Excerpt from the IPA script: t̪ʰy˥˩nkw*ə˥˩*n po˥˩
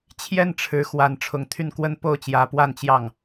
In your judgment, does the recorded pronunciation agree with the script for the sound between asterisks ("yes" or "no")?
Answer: no